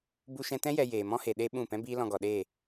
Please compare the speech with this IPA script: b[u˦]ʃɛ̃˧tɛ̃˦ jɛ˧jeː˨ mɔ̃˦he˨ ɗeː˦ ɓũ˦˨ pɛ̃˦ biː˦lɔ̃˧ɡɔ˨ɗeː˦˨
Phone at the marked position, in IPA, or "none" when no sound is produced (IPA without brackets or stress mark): u˧